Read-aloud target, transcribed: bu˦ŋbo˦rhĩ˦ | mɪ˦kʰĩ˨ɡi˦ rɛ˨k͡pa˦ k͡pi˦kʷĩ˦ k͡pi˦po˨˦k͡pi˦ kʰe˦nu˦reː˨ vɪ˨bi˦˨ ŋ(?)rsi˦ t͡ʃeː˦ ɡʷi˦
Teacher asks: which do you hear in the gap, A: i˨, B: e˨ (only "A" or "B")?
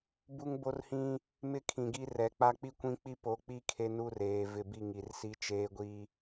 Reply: A